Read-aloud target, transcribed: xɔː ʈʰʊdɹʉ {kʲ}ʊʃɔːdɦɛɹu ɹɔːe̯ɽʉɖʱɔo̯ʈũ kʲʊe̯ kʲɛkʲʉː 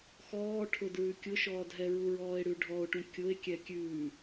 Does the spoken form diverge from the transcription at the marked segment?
no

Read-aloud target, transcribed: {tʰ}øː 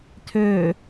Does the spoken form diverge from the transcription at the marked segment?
no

